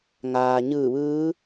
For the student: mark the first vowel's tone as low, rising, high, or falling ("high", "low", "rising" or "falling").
low